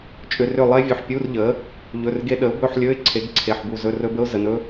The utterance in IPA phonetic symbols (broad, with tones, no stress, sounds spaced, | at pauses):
t͡ʃʼ ʏ˩˧˩ r ʏ˧˩ lˠ e˦˥ vʲ ɵ˩˧˩ ħ pʲ u˧˥˧ r ʎ ə˩˥ | ʎ ɵ˩˧˩ r ɡ e˦˥ ɗ ə˩˥ ʊ̯ b ɵ˧˥˧ ħ lʲ ɵ˧˥˧ ɪ̯ ǀʰ e˩˥ ɡ ǀʰ e˩˧˩ ħ b u˧˩ z ɵ˧˥˧ r ɵ˦˥ b ə˦˥ ʊ̯ z ə˩˧˩ n ɵ˦˥